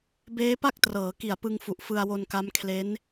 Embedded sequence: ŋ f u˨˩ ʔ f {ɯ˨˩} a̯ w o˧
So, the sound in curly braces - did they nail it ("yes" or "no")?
no